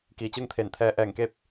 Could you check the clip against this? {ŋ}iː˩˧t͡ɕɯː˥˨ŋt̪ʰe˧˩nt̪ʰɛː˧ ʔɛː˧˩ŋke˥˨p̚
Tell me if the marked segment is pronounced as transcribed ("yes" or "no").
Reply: no